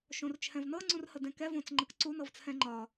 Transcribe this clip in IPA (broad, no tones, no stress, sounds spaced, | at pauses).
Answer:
ʃ õ r t͡ʃʰ ɛ̃ v n ɤ ŋ͡ǀ ũ r h ə d ɛ̃ k ɛ v õ t͡s ŋ͡ǃ ə k ǀ u n ɤ v t͡sʰ ɛ̃ ŋ͡ǃ ɒ